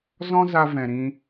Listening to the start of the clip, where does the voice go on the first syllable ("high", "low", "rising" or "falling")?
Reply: high